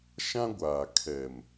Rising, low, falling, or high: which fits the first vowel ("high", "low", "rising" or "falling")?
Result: high